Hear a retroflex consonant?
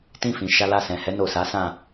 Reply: no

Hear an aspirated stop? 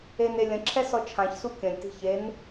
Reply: yes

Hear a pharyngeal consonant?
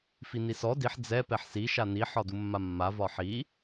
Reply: yes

